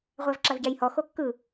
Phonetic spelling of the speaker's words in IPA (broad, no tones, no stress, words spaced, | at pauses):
ʁʷævǁavɟæjhɔ xokːɯ